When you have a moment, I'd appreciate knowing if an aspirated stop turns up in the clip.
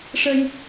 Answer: no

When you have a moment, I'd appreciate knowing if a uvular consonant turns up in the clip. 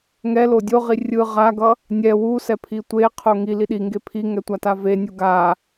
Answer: yes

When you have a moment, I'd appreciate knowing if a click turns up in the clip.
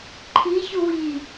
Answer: yes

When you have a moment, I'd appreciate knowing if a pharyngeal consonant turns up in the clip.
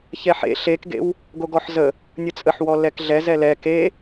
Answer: yes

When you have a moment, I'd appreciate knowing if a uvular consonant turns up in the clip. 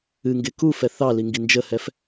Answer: no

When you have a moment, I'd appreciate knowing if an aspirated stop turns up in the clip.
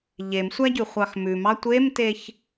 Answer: no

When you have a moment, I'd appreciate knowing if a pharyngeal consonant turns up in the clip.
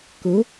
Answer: no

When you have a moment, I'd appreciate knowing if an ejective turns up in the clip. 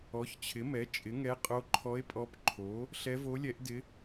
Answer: yes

